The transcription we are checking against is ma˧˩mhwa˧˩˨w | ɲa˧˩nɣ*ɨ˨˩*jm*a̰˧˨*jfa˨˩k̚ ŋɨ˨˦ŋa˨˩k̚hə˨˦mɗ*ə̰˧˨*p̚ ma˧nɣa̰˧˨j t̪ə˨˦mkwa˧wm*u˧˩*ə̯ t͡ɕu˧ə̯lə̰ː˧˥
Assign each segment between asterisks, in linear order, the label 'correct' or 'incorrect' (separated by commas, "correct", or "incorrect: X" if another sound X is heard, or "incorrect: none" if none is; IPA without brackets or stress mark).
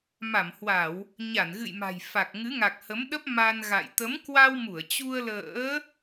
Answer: incorrect: ɨ̰˧˨, incorrect: a̤˨˩, incorrect: ə˦˥, correct